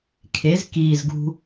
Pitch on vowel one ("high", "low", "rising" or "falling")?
rising